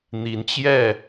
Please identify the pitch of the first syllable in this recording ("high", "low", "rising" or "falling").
rising